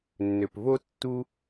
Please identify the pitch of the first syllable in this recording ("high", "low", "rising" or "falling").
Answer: low